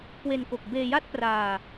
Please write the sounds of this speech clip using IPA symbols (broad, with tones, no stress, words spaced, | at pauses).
kwe˧n ko˨˩k̚beː˧ja˥˩t̚praː˧